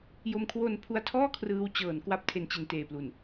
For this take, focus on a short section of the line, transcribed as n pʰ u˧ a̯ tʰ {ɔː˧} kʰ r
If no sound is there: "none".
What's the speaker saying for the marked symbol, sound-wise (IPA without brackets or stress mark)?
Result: ɔː˥˩